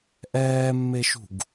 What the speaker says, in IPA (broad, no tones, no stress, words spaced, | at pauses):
ʔɛːmːeʃṳɡ